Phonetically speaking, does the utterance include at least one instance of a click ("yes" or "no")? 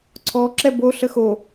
yes